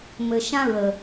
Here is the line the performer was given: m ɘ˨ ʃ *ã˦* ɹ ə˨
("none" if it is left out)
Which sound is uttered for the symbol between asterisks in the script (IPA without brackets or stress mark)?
ã˦